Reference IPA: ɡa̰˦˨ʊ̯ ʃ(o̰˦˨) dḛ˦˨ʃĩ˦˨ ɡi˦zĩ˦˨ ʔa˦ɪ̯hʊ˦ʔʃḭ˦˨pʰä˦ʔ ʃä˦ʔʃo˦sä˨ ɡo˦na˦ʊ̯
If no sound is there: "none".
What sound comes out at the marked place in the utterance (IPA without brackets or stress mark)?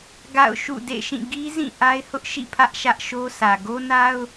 ṵ˦˨